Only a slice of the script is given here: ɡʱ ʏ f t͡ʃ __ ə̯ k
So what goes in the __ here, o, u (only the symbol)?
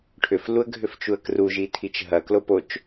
u